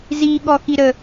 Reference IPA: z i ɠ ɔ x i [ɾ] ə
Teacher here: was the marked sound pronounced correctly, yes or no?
yes